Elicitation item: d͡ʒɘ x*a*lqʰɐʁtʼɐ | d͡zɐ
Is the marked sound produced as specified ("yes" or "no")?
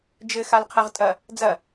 yes